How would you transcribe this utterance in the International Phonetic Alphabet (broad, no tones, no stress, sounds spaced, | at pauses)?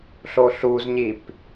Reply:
ɬ o ɬ u z ɲ i p